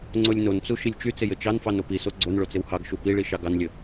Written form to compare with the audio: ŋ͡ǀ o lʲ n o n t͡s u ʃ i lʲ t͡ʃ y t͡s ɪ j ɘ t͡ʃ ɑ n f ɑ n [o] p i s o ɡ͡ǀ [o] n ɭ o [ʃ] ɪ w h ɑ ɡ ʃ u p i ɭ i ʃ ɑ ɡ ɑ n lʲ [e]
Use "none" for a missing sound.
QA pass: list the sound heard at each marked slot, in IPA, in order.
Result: o, o, t͡s, ɘ

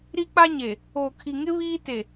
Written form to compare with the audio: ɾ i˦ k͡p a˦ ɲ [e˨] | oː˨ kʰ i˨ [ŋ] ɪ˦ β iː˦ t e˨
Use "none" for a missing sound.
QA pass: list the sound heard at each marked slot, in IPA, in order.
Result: e˨, ŋ

